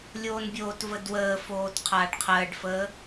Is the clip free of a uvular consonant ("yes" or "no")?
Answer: no